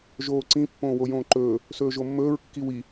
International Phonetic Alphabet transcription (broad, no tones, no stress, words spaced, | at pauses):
ʒoːǀĩ pːõːwojõːǃɵː | sɵːʒomːɵːɹ kːiwi